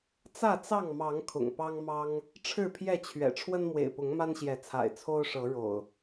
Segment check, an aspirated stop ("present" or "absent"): present